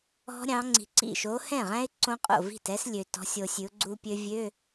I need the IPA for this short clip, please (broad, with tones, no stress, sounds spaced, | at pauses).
ɔ̤˦˥ ɾʲ ɑ̃˨˦ ŋ͡ǀ i̤˨ ǀ ḭ˥˩ ʃ o˨˦ h ɛ̃˥˩ ʁ æ̃˦˥ ɪ̯ ǀ õ˦˥ qʼ o̰˥˩ v i̤˥˩ t ɛ˦˥ s lʲ ø˨ t ɔ̤˨˦ sʲ o˨ sʲ ʉ˨˦ ʊ̯ ɡ͡ǀ u˦˥ pʲ ø˦˥ vʲ ø˧˥˧